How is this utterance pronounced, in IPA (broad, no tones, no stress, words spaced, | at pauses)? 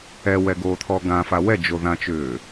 ɛwɛɡoːt̪ʰɔ ɡãfa wɛd͡ʒo ðãt͡ʃʏː